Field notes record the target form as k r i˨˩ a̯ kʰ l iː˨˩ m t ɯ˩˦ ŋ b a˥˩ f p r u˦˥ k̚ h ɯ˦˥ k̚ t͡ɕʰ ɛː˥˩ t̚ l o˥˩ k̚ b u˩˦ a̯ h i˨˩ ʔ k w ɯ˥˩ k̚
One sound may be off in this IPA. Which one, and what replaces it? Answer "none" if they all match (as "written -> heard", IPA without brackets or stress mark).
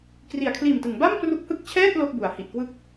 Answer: f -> m